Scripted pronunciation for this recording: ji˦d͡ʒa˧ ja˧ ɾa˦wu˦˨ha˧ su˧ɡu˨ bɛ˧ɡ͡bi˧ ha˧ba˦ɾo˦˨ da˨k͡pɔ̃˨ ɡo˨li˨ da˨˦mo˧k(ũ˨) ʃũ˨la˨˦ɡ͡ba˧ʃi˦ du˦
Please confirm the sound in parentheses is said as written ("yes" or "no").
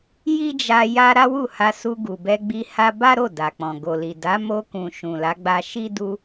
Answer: yes